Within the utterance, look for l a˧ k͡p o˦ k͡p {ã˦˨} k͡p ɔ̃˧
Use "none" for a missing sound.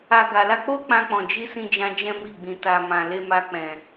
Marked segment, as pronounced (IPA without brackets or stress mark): ã˦